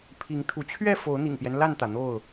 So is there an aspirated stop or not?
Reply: yes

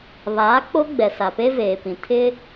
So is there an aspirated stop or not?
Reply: yes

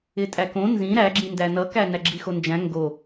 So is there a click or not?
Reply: yes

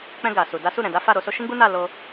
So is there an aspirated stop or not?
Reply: no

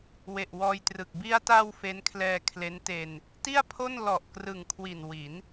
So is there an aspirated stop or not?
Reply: yes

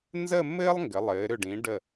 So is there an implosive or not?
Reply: no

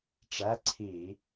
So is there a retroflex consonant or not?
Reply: yes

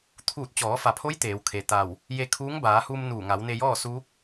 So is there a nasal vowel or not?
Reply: no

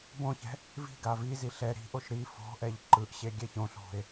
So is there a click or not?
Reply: yes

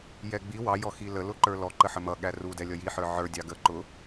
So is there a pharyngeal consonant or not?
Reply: yes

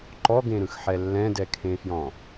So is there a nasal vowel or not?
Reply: yes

